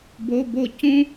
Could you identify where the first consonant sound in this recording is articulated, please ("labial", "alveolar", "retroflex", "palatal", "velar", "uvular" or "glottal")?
labial